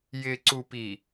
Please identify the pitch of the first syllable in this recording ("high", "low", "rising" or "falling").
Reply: low